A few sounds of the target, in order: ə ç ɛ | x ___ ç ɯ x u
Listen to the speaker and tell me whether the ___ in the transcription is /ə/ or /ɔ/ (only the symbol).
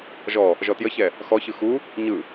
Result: ɔ